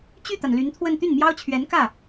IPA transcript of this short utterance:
t͡ɕ y˥˩ t̪ a˩ n l y˧˥ n t̪ʰ w ə˥˧ n t̪ y˥˩ n m j ɑ˥ ʊ̯ t͡ɕʰ ɥ ɛ˧˥ n k ä˥˩

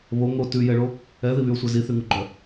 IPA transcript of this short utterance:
β o ŋ o t ʉ j ɛ ɭ o | ɛ ð i β y o̯ sʷ ɛ z i θ y ŋ u ɡ͡ǃ œ

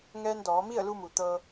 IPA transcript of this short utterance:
ŋ ɛː˧ n d ɔː˩˧ m i˥˨ ə̯ l u˧ m u˩ t̪ ɤː˧

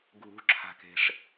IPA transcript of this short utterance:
ɡʱ ṳ ǁʰ a̤ k e̤ ʂ

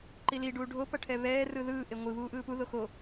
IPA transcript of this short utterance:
ǃ i l i ɖ uː ɖʱ o p ʌ ʈʰ ɛ β ɛː r ɯ ð ɯː ʔ e ŋʷ ɯ β uː ʔ ɯː p u ð o x o

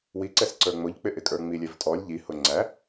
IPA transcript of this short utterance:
w i ǀ ɛ s ǀ ə˞ ŋ͡m ʊ ʎ k͡p ɪ ʔ ɪ kʼ ə˞ ŋ͡m i lʲ ɛ v tʼ ɔ lʲ ʎ i h ʊ ŋ͡ǀ æ

